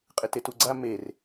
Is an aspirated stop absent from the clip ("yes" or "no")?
yes